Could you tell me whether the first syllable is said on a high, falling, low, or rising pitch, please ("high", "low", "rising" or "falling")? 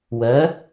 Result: rising